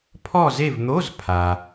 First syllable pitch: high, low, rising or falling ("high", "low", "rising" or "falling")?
falling